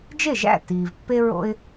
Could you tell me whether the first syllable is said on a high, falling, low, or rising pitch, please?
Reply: falling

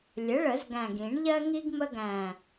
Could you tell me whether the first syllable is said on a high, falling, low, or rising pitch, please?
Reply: rising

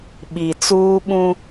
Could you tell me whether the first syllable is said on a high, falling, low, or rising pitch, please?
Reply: low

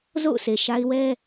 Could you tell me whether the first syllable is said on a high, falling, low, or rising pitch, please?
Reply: falling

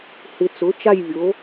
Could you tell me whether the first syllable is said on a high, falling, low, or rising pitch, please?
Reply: low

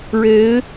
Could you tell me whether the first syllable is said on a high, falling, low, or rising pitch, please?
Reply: rising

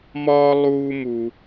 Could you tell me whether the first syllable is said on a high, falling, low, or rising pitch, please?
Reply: high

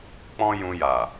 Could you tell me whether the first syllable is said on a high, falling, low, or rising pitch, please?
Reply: high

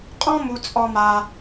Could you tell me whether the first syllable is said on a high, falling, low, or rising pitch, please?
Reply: high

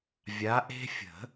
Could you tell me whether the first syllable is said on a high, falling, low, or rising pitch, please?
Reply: rising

